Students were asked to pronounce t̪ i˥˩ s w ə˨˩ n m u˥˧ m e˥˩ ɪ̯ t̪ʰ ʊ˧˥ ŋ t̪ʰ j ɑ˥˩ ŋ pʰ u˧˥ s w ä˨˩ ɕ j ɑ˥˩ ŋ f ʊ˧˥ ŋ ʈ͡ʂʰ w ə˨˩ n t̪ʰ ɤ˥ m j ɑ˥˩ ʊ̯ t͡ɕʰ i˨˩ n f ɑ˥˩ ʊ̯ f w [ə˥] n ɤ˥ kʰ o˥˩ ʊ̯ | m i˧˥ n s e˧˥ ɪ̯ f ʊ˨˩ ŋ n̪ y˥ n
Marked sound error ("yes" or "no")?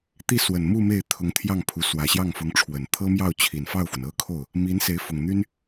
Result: yes